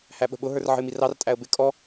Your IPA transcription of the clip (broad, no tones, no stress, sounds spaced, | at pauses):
h æ ɓ ə̤ ɓ ʊ ɦ ə˞ r ʕ ə̤ ɪ̯ m i r ɑ r tʼ æ ə̯ b ɪ kʼ ɔ